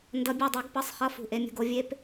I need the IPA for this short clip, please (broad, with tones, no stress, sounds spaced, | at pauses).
n d ʌ˧˥ bʲ u˦˨ dˤ ɛ˧˥ ɡ p ʌ˧˥˧ sˤ χ ʌ˧˥˧ f ṳ˦˨ ʔ e˧˥ mʲ ṳ˧˥˧ ɡ o˧˥ vʲ e˥ p